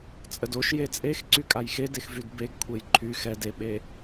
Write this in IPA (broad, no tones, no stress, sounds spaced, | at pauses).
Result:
t͡sʼ ə d o ʃ j e t͡sʼ e x ǀ y kʼ a j x e d e x v y d b e ɡ kʷʰ e j ǃʰ y x ɛ d e ɓ e